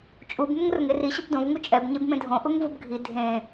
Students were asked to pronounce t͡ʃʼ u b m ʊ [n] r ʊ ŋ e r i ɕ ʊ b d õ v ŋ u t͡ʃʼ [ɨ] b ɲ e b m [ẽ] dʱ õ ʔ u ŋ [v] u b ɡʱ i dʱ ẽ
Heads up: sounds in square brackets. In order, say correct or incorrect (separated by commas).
incorrect, incorrect, correct, correct